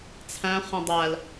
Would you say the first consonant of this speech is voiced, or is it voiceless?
voiceless